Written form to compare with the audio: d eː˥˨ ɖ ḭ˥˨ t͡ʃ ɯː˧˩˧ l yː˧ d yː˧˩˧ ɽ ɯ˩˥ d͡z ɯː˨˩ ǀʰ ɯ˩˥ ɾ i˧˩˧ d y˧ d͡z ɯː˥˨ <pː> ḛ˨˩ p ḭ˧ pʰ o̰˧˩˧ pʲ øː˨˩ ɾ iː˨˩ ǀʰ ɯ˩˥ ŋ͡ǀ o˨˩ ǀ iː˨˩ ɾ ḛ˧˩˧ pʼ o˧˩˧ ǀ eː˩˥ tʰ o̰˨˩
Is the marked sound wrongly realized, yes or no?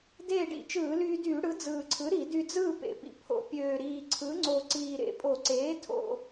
yes